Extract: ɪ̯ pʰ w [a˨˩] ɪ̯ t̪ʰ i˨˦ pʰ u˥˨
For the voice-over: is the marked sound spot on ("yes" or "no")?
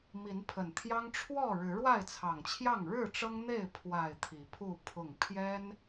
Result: yes